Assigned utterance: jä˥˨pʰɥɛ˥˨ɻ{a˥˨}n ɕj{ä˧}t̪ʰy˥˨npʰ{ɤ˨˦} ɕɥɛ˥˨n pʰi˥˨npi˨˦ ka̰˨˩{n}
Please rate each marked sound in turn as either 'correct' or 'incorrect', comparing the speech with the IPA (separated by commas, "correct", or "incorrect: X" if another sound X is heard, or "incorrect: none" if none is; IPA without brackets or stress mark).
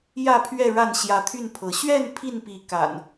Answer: correct, incorrect: ä˨˦, correct, correct